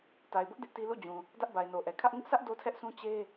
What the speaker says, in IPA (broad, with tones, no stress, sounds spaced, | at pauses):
t a˨ ɪ̯ b ʊ˦ ʔ d ɪ˦ ʔ t i˦ l ṵ˦˨ d͡ʑ ũ˨ | d ä˦ ʔ b a˨ ɪ̯ n o˨ ʔ ɛ˨ kʰ ä˦ ʔ ŋ ɪ˦ ʔ sʰ ä˦ ʔ d o˦ tʰ ɛ˦ ʔ s ũ˦ t͡ɕ e˦